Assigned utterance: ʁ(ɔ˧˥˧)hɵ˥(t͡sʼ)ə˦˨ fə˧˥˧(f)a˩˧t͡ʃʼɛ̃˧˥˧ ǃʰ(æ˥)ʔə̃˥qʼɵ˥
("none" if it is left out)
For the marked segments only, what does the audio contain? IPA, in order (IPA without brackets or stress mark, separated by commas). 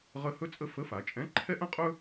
ə˧˥˧, t͡sʼ, f, ɛ˥